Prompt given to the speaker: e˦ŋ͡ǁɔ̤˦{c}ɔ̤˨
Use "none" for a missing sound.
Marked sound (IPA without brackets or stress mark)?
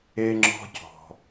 c